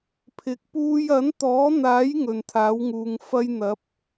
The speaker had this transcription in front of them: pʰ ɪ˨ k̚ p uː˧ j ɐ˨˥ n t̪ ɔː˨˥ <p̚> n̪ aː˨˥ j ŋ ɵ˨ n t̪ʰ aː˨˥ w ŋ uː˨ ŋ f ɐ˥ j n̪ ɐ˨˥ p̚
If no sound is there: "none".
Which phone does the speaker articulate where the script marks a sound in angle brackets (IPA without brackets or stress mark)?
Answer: none